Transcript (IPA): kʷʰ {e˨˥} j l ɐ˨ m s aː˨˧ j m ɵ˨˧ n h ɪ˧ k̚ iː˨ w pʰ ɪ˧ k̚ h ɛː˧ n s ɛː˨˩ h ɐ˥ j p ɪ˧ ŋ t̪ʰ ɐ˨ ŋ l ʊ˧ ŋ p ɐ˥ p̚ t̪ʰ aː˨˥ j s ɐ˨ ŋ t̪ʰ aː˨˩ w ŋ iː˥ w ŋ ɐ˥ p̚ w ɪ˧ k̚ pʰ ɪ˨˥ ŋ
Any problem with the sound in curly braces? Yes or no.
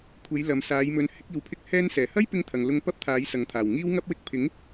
yes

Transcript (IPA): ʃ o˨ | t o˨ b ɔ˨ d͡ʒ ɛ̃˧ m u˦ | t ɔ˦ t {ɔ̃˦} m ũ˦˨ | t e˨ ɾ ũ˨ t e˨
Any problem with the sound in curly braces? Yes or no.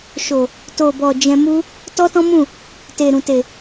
no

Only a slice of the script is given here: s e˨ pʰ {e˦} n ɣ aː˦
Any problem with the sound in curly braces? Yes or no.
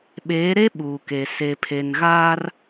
yes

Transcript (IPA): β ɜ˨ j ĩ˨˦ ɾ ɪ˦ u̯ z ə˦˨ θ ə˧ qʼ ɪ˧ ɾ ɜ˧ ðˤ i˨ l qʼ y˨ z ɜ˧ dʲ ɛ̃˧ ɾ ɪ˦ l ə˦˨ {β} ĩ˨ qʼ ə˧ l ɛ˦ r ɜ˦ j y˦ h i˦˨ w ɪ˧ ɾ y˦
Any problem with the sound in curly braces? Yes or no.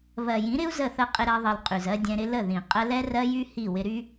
yes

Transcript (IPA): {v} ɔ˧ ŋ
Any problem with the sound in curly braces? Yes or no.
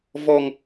no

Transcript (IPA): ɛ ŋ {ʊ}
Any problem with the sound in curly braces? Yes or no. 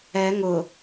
no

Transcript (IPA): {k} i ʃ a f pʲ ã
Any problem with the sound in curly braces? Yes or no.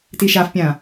yes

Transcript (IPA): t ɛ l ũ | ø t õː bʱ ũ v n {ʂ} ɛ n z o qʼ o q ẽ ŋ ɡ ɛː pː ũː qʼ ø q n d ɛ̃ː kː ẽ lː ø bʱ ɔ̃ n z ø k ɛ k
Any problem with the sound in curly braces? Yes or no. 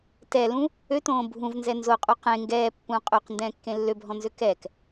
yes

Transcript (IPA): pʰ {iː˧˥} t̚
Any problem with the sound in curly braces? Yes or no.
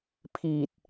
yes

